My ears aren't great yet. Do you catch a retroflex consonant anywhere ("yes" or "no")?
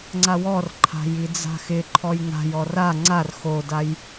no